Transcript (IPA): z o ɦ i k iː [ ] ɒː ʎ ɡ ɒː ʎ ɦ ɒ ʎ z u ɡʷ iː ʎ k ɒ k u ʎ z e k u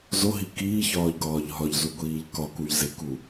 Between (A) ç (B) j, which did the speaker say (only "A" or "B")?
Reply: A